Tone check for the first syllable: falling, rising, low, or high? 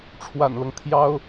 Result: low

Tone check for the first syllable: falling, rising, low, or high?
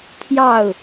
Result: falling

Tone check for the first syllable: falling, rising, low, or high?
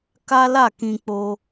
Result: high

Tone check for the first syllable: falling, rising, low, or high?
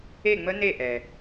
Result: falling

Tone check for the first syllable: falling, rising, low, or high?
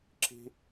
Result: high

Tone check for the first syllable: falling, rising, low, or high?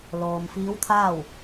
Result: low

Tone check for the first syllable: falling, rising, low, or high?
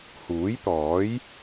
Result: rising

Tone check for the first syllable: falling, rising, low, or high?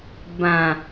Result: low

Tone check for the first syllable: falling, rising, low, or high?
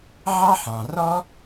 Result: high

